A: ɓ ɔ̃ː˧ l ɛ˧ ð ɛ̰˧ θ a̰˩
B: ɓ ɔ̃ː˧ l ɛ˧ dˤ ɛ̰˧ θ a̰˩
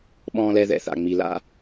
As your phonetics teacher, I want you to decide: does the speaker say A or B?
A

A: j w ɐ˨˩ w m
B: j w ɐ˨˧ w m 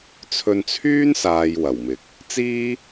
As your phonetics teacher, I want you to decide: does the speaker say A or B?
A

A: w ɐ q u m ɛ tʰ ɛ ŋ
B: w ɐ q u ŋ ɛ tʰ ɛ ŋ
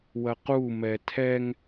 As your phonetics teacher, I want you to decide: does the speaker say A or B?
A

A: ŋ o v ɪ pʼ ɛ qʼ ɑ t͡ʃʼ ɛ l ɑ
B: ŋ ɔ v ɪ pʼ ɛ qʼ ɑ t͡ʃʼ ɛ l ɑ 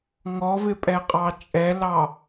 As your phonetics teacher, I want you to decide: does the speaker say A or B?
B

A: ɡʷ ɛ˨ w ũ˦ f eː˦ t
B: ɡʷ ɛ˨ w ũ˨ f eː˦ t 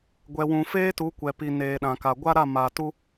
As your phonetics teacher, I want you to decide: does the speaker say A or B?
B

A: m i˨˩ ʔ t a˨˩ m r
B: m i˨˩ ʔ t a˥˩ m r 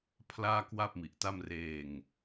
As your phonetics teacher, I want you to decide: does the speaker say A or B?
B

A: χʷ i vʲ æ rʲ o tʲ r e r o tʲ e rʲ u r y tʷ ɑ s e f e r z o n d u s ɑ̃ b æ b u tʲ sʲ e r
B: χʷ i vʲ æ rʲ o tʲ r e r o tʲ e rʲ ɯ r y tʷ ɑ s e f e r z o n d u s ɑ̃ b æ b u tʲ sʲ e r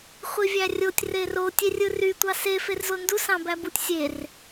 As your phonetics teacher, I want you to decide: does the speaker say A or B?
B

